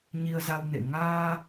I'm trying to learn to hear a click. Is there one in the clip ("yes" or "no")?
no